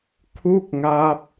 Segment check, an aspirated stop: present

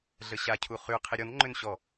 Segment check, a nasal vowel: absent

